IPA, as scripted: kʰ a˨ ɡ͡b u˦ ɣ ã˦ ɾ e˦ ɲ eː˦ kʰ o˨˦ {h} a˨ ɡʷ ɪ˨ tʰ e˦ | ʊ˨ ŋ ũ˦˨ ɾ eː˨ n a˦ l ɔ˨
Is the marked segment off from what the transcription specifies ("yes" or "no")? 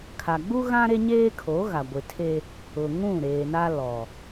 yes